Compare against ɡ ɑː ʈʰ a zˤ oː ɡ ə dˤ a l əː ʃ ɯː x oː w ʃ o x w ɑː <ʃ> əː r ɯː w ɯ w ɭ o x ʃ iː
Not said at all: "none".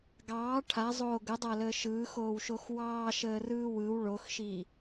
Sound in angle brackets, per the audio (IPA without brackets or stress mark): ʃ